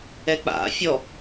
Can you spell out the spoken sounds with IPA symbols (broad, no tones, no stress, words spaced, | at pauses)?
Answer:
ɛk͡pa̰ fʲɔ